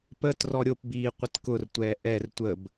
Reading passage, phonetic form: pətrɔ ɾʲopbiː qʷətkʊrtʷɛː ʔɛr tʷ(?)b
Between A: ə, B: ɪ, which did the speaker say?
A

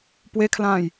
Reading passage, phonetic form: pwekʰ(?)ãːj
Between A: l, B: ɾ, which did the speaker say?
A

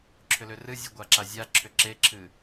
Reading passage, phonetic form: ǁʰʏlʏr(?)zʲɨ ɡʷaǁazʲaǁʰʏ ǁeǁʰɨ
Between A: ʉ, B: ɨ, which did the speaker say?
B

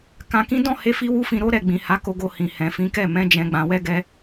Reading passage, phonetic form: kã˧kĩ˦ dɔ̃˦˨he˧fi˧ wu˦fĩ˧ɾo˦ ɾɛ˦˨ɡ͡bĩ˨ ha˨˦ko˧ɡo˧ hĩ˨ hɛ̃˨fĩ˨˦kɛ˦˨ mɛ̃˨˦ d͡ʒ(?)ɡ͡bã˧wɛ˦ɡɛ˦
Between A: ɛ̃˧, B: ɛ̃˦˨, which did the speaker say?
A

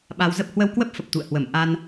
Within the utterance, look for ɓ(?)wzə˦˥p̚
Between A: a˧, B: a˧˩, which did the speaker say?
A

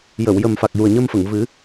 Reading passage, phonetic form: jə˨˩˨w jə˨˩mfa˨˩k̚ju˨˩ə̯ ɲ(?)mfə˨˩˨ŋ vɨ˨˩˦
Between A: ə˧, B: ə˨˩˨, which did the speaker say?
A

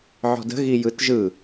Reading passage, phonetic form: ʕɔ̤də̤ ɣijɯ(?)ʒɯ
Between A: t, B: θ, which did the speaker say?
A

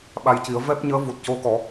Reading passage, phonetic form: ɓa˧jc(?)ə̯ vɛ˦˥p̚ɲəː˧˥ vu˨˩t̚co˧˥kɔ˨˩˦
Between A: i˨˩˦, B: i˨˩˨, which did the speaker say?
A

